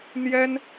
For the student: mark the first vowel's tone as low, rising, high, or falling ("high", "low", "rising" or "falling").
high